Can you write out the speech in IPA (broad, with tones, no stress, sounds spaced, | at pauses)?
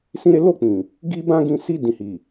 s ĩ˦ ɾ e˦ l o˦˨ k͡p ĩ˨ | ɡ i˦ b ã˦ ɡ ĩ˧ s i˧ d ĩ˨ h i˨